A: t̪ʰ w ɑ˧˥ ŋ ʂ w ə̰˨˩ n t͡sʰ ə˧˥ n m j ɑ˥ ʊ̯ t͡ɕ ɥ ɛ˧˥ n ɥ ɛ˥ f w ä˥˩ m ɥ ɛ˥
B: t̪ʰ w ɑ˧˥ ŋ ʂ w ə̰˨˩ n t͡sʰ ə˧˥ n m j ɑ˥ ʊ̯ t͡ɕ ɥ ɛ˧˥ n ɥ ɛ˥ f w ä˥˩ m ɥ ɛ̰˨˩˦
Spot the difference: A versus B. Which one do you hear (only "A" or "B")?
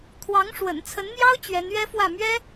A